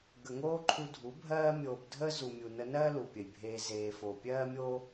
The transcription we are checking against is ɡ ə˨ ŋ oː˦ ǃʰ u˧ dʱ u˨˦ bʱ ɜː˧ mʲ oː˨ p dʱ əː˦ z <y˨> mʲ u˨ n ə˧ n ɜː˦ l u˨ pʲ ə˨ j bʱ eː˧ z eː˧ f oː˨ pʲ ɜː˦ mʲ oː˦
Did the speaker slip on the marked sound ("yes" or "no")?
yes